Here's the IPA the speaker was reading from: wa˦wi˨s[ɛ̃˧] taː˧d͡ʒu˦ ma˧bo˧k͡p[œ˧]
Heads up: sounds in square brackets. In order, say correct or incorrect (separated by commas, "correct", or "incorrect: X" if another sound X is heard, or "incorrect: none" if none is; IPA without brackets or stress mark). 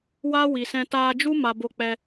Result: correct, incorrect: ɛ˧